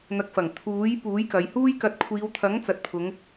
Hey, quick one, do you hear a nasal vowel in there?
no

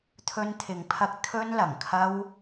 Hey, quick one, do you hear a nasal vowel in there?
no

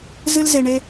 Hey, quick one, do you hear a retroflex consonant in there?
yes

